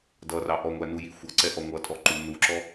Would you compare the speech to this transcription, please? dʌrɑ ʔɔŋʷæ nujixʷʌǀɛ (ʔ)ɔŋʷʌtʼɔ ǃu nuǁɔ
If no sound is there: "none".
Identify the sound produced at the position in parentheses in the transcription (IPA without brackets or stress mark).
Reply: ʔ